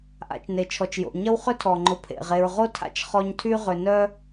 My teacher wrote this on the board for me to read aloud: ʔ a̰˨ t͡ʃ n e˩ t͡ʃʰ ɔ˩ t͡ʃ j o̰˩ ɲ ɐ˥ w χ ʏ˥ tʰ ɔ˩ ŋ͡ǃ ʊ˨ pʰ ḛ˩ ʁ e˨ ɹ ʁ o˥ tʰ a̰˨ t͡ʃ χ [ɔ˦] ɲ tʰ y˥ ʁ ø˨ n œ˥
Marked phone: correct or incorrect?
correct